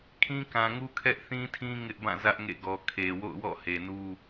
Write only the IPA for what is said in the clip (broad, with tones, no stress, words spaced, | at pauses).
kʰĩ˦kã˨ŋu˦ kʰɛ˦ʔθĩ˦tʰĩ˦ ŋɪ˦ʔbã˦˨zä˦ʔ ŋḛ˦˨ɡɔ˨ kʰe˨ wo̰˦˨ʊ̯wɔ̰˦˨he˨nu˦